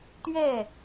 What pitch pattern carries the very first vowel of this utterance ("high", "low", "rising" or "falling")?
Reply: falling